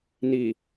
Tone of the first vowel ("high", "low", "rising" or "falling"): low